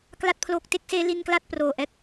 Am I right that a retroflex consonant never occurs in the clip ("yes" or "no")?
yes